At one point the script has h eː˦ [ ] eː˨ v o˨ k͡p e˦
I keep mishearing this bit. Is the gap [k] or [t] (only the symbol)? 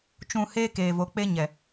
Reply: k